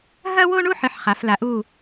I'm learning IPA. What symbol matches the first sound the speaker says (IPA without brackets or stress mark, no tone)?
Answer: ɦ